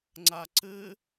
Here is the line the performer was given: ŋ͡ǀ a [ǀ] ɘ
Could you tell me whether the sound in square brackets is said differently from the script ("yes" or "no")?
no